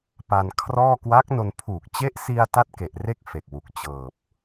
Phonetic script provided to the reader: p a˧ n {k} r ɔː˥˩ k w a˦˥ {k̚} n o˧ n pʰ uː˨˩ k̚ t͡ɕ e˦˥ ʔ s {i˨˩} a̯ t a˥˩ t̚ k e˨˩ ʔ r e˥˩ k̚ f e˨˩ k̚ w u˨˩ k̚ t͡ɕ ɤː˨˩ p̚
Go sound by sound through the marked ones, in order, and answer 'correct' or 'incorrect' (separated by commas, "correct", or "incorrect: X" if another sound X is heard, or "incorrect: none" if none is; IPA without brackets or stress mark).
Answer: incorrect: kʰ, correct, incorrect: i˧